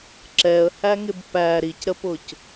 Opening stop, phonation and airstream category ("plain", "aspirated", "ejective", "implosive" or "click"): click